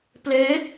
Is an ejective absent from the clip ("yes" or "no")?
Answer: yes